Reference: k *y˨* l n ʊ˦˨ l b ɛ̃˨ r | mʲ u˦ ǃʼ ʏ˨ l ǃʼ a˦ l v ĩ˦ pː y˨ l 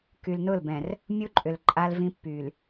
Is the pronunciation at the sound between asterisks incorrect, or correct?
correct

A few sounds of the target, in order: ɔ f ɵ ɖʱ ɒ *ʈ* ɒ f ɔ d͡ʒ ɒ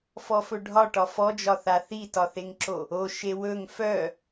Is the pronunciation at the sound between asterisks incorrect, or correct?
correct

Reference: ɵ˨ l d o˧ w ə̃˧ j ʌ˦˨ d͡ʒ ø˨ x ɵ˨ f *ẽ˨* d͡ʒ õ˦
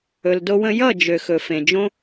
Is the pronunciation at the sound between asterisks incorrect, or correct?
correct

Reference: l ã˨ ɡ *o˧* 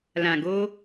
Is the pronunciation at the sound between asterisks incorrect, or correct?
correct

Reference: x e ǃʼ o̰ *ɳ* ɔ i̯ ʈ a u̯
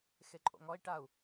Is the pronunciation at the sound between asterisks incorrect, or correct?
incorrect: ŋ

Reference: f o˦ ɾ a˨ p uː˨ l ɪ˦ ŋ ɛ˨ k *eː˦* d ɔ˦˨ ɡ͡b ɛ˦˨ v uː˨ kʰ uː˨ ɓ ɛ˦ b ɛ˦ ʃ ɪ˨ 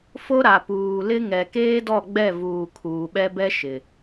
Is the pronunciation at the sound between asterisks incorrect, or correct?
correct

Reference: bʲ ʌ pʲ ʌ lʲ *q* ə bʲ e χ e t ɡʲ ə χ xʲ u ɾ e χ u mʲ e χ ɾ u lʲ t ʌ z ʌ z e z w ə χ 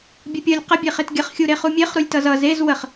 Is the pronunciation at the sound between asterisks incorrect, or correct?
correct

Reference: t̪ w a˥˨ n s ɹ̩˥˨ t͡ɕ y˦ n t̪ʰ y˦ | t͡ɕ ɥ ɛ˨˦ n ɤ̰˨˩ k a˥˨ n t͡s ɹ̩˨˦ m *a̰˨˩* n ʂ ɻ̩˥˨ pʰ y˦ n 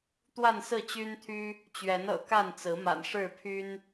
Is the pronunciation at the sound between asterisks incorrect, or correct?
correct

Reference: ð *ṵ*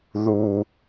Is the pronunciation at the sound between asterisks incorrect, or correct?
incorrect: u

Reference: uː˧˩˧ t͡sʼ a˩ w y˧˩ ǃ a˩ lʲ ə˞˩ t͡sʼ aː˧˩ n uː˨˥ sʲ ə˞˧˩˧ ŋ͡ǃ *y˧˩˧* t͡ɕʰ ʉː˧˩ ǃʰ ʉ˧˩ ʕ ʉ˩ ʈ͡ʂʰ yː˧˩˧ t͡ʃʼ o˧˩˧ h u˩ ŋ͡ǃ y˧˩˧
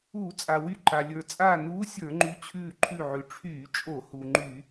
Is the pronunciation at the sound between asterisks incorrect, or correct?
incorrect: y˨˥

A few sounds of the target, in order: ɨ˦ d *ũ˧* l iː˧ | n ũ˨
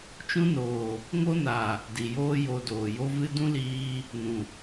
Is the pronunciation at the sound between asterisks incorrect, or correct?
incorrect: ũ˦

